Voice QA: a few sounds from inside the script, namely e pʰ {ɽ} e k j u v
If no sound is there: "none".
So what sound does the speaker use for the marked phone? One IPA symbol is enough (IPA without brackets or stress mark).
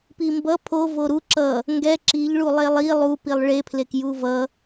l